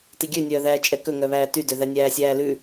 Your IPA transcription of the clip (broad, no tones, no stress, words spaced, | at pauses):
tiɡʲønʲœː ðæːt͡ʃʼɛkɵŋœ βæːtydøðæ nʲæːsʲæːlʉ